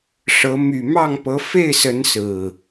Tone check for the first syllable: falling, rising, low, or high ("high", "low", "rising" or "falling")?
rising